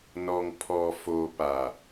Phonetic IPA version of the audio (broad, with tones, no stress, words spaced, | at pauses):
nɔ˨ŋpʰɔ˨ fo˨pa˨